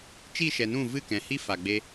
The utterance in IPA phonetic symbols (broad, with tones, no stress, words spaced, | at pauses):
t͡ʃi˦˨ʃɛ˨nũ˦˨ vɨ˦˨kɛ̃˨hi˦ fa˨ɡ͡be˧